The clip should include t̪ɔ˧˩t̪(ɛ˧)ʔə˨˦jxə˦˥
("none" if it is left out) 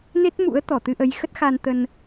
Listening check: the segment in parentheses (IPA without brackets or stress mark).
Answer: ɨ˧